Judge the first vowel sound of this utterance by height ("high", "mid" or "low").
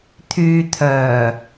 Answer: high